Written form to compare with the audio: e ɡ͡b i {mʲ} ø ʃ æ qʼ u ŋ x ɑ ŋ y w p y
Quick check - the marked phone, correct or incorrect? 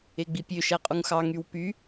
incorrect